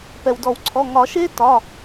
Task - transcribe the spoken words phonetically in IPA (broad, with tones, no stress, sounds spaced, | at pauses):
p ɛ˩ w d ɔ˨˩˦ w ǀʰ ɔ˩˧˩ ŋ ɒ˨˩˦ ʃ e˦˥ t ɒ˩˧˩